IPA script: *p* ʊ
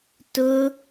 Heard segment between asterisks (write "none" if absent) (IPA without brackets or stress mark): t